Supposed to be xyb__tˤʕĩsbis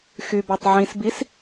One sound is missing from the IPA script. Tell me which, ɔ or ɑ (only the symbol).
ɑ